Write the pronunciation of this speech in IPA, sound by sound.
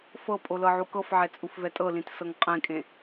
f ɤ pʼ o l ɤ ʕ u k ɤ f ʕ ɛ t͡sʼ u f v ɛ tʼ ɤ l ĩ t s ɤ ŋ qʼ ẽ kʼ ẽ

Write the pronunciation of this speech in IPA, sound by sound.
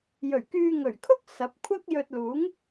j ɵ˨˩ ɥ k yː˧ ŋ ɵ˨˩ ɥ kʰ ʊ˥ k̚ s ɐ˨˥ p̚ kʷʰ ɐ˥ k̚ j ɵ˧ t̚ l uː˨˥ ŋ

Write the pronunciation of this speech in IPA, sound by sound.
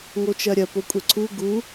ŋ o t͡ʃ ɜ ɾʲ ɜ p o kʷʼ ɛ ǀʰ u ɡ u

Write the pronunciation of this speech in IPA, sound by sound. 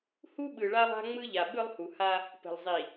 h u˦ ɓ ɯ˨ ɭ a˦ lˠ a̤˦ ŋ͡m ɯ˦ ʎ a˨ ɓ ɯ˦ lˠ h u˨ h a˦ | p ə̤˨ l zˤ i˨

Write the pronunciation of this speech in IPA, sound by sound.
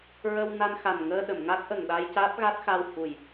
ɹ ə˧ w n a˧ n x a˨˩ n ŋ əː˧ ɗ ə˨˩˨ m ŋ a˦˥ k̚ ʔ ə˨˩ ŋ ɗ a˧ j c aː˦˥ p̚ ɣ a˦˥ t̚ x a˧ w h u˨˩ j

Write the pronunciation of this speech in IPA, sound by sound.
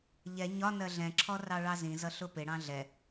ʎ ɛ ɲ ɒ n ɜ ɮ ɛ̃ ǁʰ ɔ r ɑ ɭ ɑ z ĩ z ʌ ɬ ʊ p ɪ ɽ ɑ̃ ɮ ɛ

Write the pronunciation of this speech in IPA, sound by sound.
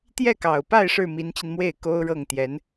t̪ j ɛ˥˩ k ɑ˨˩ ʊ̯ p a˥˧ ɪ̯ ʂ ɻ̩˥˩ m i˧˥ n t͡ɕ i˧ n m w e˥˩ ɪ̯ k o˥ ʊ̯ ɻ ɤ˥˩ ŋ t̪ j ɛ˧˥ n

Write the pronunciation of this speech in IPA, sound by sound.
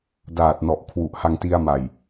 d aː˨˩ t̚ n ɔ˨˩ ʔ kʰ w u˨˩ ʔ h a˧ ŋ t i˧ a̯ m a˨˩ j

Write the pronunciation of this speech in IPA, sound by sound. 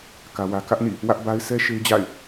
k ä˦ w ä˦ k ä˦ ʔ n ḭ˦˨ | w ä˦ ʔ b a˦ ɪ̯ s ɛ˦ ʃ e˦ ɪ̯ d͡ʑ a̰˦˨ ɪ̯

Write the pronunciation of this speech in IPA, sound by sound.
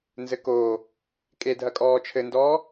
n z ɘ k oː | kʼ e dʱ ɐ kʼ ɔː t͡ʃʰ ɘ n d ɔː

